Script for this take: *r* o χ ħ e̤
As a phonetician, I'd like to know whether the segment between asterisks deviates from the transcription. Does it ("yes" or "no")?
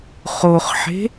yes